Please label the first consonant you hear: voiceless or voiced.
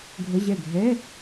voiced